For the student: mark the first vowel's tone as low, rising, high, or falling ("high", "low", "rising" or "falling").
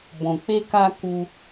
low